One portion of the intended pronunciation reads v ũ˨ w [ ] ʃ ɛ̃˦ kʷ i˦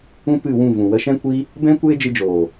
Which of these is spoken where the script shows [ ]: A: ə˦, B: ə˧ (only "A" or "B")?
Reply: B